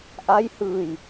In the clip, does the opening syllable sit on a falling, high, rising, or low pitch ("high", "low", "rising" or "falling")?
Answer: rising